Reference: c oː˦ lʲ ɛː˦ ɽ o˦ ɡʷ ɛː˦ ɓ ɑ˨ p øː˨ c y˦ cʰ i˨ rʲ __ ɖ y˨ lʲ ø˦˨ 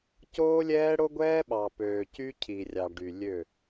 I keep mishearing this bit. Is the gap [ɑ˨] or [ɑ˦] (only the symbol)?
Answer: ɑ˨